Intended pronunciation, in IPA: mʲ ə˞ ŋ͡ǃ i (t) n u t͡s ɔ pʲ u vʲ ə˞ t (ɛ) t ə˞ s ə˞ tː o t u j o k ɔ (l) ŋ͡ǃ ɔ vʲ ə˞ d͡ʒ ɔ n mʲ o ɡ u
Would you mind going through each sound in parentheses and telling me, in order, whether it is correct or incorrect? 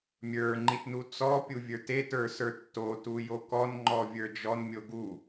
correct, incorrect, incorrect

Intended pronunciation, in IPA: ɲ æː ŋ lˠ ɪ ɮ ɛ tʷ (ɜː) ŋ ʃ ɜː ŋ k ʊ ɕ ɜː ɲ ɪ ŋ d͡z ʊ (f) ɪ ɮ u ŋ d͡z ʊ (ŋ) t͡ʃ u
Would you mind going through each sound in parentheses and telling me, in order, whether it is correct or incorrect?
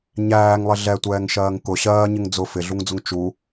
incorrect, correct, correct

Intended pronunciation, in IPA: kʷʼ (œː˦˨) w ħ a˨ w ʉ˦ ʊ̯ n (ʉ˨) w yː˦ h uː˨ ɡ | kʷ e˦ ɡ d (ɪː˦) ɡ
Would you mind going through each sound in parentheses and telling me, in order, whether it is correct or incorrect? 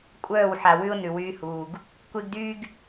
correct, correct, incorrect

